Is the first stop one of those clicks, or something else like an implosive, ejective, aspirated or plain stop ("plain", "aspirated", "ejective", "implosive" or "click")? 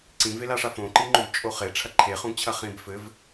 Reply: click